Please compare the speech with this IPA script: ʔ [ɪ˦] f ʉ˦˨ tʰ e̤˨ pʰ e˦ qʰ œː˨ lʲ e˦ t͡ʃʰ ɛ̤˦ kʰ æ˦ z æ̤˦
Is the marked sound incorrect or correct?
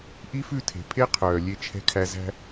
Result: incorrect: i˦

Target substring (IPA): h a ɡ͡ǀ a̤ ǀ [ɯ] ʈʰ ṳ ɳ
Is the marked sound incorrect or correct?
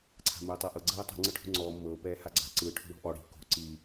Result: correct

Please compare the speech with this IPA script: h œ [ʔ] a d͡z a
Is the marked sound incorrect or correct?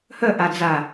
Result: correct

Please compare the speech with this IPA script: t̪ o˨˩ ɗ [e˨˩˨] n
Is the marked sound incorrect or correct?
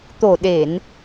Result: correct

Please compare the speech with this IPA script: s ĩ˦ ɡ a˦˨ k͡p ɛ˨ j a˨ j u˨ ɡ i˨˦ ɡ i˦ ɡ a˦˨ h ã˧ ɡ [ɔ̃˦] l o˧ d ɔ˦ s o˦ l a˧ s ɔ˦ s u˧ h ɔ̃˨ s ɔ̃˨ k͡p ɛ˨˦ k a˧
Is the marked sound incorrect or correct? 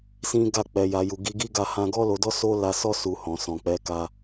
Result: incorrect: ɔ˦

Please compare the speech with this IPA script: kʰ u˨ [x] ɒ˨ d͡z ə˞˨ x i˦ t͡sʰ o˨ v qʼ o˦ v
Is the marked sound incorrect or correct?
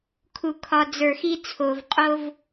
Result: incorrect: kʰ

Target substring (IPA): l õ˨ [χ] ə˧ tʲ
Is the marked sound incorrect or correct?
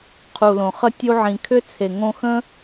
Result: correct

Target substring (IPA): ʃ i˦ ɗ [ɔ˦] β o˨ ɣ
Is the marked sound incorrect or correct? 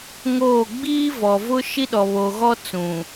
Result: incorrect: ɔ˨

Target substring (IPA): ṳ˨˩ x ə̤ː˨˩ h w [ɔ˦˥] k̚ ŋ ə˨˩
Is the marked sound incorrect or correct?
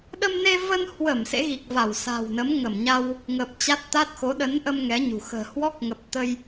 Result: correct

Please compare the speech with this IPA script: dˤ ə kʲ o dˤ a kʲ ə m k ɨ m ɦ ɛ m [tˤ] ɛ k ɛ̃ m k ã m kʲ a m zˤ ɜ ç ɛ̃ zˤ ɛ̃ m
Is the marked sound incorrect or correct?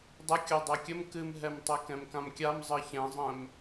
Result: correct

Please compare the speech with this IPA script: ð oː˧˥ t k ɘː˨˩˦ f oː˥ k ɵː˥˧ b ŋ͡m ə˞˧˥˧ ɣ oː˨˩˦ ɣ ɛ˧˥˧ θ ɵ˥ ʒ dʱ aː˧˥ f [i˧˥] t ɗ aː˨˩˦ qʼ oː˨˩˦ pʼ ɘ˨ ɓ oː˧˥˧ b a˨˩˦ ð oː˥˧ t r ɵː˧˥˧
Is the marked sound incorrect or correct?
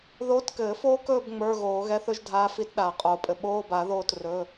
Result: correct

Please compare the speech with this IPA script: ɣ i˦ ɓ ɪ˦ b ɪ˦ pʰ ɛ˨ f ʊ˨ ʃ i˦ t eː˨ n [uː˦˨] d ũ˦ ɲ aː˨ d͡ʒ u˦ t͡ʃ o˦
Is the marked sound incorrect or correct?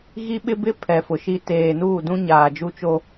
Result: correct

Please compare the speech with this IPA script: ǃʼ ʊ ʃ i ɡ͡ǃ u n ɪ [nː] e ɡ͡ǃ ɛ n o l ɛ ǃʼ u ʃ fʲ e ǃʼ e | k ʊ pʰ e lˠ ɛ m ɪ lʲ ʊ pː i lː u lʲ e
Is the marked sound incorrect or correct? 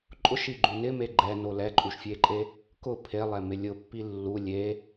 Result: incorrect: m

